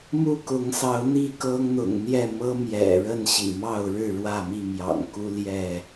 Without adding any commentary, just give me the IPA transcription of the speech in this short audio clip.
m u˥˨ k ʊ˨˦ ŋ s ɑ˨˦ ʊ̯ n̪ i˥˨ k ɤ˦ ŋ n̪ ʊ̰˨˩ ŋ n̪ j ɛ˥˨ m ɤ˦ m j ɛ̰˨˩ ɻ ə˥˨ n ɕ ḭ˨˩ m ɑ˥˨ ʊ̯ ɻ ɻ̩˥˨ ɻ w ä˥˨ m i˥˨ m j ɑ̰˨˩ ŋ k u˦ l j ɛ˥˨

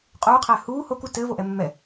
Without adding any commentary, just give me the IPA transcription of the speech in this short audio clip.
qʼ uː qʰ ɛː h uː h o k u t ɘː v o ʔ ɛ mː ɛ

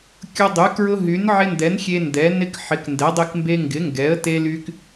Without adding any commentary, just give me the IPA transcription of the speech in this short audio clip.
kʲ ʊ˦ dˤ y˨˥ k ɹ ʊ˦ ɦ y˨˥ n ʕ ɪ˦ n d ɛ˨˥ n xʲ e˦ n d ɛ˨˥ n ɪ˦ k ħ ɪ˨˥ k n d ɛ˨˥ dˤ e˦ k m b e˦ ŋ ɡ ɪ˨˥ ŋ ɡ ɛ˨˥ ə̯ t e˦ l y˦ k

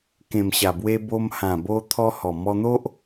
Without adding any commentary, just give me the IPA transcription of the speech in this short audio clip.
k ẽ˨˩ m ɕ a˨˩ b w e˧ b o˧ m h ã˨˩ b o˧ t̪ʰ ɔ˧ h ɔ˨˩ m ɔ˧ n̪ o˦ ʔ

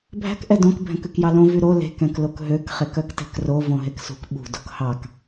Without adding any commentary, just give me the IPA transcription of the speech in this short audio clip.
bʱ æ̤ k ʔ ɛ d õ k bʱ ɛ̃ k ʉ k j ɑ l õ v y ɾ o l e̤ k ɛ̃ k l o k ɦ ø k χ e k œ k t ɛ̤ k r o v õ ɦ e k s ṳ k ɓ ṳ d o k h ɑ k

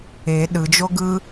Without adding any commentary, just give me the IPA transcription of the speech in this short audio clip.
e ɗ ɯ d͡ʒ o ɡ ɯ

